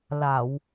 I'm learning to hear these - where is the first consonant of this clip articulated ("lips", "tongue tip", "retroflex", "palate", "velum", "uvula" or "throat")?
tongue tip